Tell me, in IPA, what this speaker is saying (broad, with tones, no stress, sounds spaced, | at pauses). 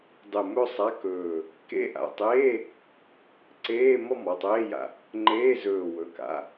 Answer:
dˤ ɯ˧˩ m ɵ˥˧ sˤ a˧˥˧ k ɵː˧˩ | k ḛ˧˥˧ ʔ a̰˩˧˩ tˤ eː˧˥˧ | ǀ eː˧˥˧ m ɔ˥˧ m ɔ˩˧˩ tˤ eː˧˥˧ j a̰˧˩ | ŋ͡ǃ eː˧˥˧ z ɵː˧˩ w ɵ˩˧˩ k a̰˩˧˩